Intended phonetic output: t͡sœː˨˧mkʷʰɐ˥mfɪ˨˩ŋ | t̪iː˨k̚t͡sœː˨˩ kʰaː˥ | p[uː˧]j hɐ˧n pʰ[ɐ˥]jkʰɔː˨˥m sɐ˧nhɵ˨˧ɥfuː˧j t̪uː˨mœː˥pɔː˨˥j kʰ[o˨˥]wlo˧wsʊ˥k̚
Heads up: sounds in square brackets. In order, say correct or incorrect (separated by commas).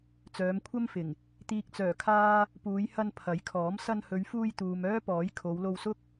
incorrect, incorrect, incorrect